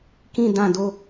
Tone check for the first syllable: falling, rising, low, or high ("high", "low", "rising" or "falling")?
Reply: falling